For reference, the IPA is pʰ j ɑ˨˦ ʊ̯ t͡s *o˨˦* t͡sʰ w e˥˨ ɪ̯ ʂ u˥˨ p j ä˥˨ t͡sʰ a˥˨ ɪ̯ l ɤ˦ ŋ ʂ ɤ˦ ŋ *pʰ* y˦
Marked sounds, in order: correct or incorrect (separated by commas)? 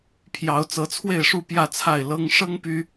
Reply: incorrect, incorrect